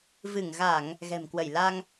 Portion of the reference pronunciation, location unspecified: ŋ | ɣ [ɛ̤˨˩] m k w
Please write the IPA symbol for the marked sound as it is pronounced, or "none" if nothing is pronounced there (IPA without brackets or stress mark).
ɛ̤˨˩